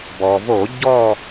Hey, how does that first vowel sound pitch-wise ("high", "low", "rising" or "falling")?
low